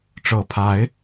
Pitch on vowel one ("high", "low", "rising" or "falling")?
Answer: rising